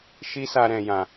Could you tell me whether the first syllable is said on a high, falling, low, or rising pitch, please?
high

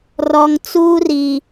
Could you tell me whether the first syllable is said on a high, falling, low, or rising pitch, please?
low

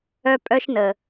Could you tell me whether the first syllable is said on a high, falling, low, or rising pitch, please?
high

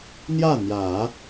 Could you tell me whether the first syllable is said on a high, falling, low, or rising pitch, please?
falling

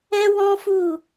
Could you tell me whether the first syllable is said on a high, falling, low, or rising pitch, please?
high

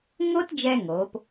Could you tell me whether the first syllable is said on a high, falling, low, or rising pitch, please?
high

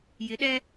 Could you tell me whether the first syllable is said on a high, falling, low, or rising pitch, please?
rising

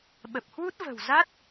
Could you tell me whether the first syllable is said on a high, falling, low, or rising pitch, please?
low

